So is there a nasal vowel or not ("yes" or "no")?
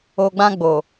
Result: yes